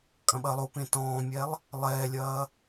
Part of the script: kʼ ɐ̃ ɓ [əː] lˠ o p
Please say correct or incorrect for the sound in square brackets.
incorrect